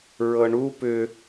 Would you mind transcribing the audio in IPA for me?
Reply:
ɹ ɤ ɳ u p ʏ

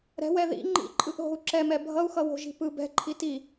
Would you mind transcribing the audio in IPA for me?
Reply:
ɾ ɛ̤ w ɛ ð ḭ ŋ͡ǃ ḭ ǃʼ ɯ ʔ ɦ o̤ u̯ ǁ ɛ m ɛ bʱ ʌ u̯ x ʌ w o̤ ʒ i̤ p ɯ b ɛ̤ ǃʰ i t i

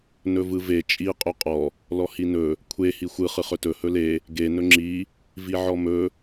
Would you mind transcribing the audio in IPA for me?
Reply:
n ɵ v ɯ v e t͡ʃʼ i qʼ ɵ qʼ ɔ | l ɔ h i n ɵ | kʷʰ e h i xʷ ɯ χ ɯ χ ɵ t ɵ h ɵ l e | ɡ e n ɵ ŋ͡ǁ i | v i ʕ ɔ m ɵ

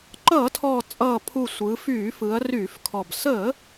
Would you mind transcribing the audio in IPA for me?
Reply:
ǃ ʌː˧˩˧ tʰ ɔː˨˩ t͡sʼ ʌː˨˩ pʰ u˨˩ sʷ ɯː˩˧ f yː˧˩˧ f ɯ˩˧ ɐ̯ r yː˧˩˧ f kʰ ɔ˨˩ b s əː˧˩˧

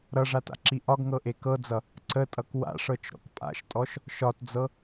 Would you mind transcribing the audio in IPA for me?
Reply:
ɾ ʌ ʐ a t a̰ ǁ i ʔ ɒ ɡ ŋ ɤ ʔ e k ɤ d͡z ʌ | ǀ ə tʼ ʌ k w a̰ ʂ ɤ t͡ʃ ɾ ɔ̰ k pʼ a̰ ʃ tʼ ɔ ʃ | ʃ ɒ t d͡z ɤ

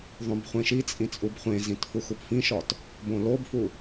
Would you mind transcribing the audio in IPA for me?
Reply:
ðˤ õ b χʷ ẽ ʃ i t͡sʼ ĩ t͡sʼ u b χʷ ẽ z ĩ t f u x u p f ĩ ʃ ɒ t | b õ l o b f u

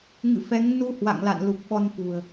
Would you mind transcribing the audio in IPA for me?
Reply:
ŋ ɨ̰˧˨ f ɛ˨˦ ŋ n u˧ h w a̰˧˨ ŋ l a̰˧˨ n l u˨˩ k̚ ɓ ɔ˧ n f ṳ˨˩ ə̯

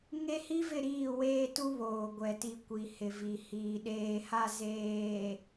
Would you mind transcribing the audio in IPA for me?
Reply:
ŋ e˦ h i˦ v ɪ˦˨ ɾ iː˦˨ w eː˦ t u˦ β oː˨ ɡʷ ɛ˨ t i˨ kʷ i˨ h ɪ˨ v i˨ h iː˨ ɗ eː˨ h a˦˨ z eː˨

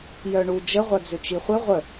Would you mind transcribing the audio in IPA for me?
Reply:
j œ ɳ u d͡ʒ ə ʁʷ ɐ d͡z ʏ t͡ʃ i χʷ ɪ ʁʷ ə

